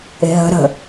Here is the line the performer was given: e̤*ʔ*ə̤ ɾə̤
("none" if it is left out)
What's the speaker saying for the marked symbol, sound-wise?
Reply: ɦ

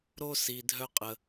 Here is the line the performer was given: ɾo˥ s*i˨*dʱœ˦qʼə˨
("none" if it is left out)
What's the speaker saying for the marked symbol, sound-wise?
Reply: i˨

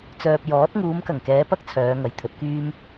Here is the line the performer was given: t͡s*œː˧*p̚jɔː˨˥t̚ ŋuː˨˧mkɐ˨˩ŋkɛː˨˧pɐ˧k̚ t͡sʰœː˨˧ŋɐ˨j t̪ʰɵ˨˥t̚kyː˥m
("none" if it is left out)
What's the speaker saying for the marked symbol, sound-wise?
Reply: œː˨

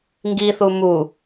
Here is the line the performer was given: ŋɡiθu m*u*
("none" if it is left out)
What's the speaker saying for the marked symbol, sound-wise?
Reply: u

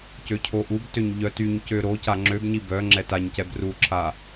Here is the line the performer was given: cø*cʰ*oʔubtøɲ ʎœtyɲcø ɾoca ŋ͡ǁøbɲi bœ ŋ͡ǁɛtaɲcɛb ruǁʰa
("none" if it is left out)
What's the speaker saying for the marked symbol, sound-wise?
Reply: cʰ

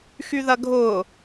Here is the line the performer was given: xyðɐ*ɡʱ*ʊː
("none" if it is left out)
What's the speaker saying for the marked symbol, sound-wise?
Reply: ɡʱ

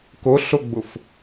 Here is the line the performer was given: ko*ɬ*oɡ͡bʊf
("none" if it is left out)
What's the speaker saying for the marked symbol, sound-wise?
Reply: ɬ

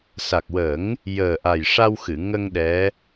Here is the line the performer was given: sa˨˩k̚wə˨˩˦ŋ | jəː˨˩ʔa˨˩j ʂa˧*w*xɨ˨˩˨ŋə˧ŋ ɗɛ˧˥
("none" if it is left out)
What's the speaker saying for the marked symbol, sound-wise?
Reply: w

